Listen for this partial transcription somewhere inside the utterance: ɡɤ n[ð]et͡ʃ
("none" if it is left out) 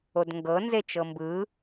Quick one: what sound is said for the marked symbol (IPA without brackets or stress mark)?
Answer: z